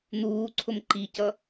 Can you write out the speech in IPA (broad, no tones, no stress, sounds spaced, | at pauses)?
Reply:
n̪ uː ǀʰ ʊ m ǃ i c ʌ